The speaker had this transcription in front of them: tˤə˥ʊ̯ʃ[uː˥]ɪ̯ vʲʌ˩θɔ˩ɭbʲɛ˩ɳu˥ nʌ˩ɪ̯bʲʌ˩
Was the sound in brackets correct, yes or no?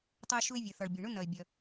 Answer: no